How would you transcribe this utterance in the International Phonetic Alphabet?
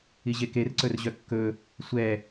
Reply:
iʑekerǀɵr ʑœkːɵ | sʷɛ

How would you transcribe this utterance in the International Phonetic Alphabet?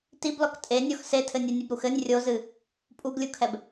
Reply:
tiblɔk tʼenʲɔx setʰɘnʲanʲɘb ɾuxɘnʲ rʲozɨ | pʼuɡlʲukʰɛb

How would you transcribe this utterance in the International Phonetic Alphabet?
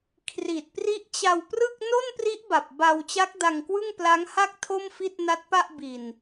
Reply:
kʰri˨˩t̚pri˦˥ʔt͡ɕa˧wprɯ˥˩k̚ no˥˩npri˦˥ʔba˨˩p̚ ba˧w t͡ɕa˦˥k̚da˧ŋkwɯ˥˩ŋpla˦˥ŋ ha˥˩k̚ tʰo˥˩mfi˥˩t̚na˦˥t̚pa˥˩ʔ bi˨˩n

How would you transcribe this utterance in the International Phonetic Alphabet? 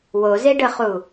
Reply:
wozeɖəχu

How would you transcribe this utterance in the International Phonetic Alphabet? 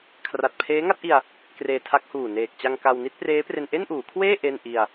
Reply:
kʰra˨˩t̚pʰeː˦˥ŋa˥˩t̚ʔi˧a̯ | kreː˧tʰa˦˥k̚huː˨˩neː˨˩k̚ t͡ɕa˧ŋka˧w ni˥˩t̚preː˦˥pre˧n ʔe˥˩nʔuː˩˦kʰweː˥˩ ʔe˥˩n ʔi˧a̯

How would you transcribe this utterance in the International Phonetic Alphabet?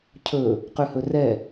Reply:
cʰɵ | qʉhɵrɛ

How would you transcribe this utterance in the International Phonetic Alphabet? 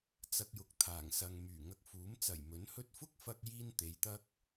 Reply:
t͡sɐ˧k̚jʊ˨k̚t̪ʰaː˨˩ŋsɐ˨ŋ myː˨˩ ŋɐ˧k̚fuː˨˥m t͡sɐ˨˩jmɵ˨˥nhɵ˥t̚ fʊ˥k̚fɐ˧k̚ jiː˥nt̪e˨˧jt̪ɐ˥k̚

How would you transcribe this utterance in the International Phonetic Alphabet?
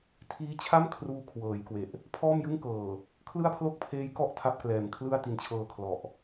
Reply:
tʰiː˦˥t͡ɕʰa˥˩m kʰruː˦˥kʰwɤː˩˦jkwe˨˩ʔ | pʰɔː˥˩mjɯ˥˩ŋkɤː˨˩ | kʰlɯ˥˩a̯pʰlo˥˩k̚pʰeː˦˥jkɔ˥˩ʔ tʰa˥˩p̚klɛː˨˩mkʰlɯ˥˩a̯ ti˧nt͡ɕʰɤː˧kʰlɔ˨˩ʔ

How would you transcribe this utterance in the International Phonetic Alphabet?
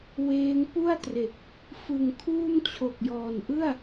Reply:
weː˦˥ŋ pu˥˩a̯tre˨˩k̚ | fɯ˨˩ŋkʰuː˥˩m t͡ɕʰo˨˩k̚jɔː˨˩nʔɯ˥˩a̯

